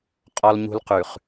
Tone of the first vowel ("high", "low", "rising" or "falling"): high